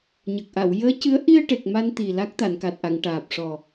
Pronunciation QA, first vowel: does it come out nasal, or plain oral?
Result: oral